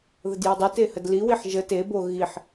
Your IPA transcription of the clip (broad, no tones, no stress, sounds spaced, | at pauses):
ð ə d j e dˤ ɨ t e h ə d l i w i ħ ʒ ə t e b o ɣ i ħ